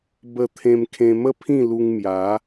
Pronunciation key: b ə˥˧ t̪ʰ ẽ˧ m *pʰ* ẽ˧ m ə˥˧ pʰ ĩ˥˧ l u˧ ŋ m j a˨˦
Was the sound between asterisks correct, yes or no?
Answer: no